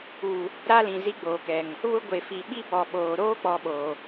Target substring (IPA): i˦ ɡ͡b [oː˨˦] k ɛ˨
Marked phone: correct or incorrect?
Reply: incorrect